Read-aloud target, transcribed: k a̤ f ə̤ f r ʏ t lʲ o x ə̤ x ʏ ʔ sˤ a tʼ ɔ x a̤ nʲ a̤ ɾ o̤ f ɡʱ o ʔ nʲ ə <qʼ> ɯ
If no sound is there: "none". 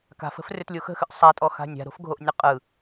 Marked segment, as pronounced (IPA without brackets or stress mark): qʼ